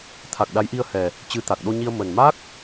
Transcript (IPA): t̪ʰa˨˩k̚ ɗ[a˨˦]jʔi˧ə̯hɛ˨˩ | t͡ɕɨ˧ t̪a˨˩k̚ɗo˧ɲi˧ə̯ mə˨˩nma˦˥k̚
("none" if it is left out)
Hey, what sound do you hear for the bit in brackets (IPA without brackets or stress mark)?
a˨˦